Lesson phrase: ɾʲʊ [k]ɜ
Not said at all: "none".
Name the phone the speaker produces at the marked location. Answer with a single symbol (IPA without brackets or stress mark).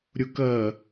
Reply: k